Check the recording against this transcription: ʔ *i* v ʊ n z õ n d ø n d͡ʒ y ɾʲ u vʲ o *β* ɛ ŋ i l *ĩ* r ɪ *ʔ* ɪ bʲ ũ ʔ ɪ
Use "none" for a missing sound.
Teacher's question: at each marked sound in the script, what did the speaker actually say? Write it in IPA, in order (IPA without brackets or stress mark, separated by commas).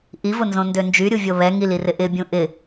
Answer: i, β, i, ʔ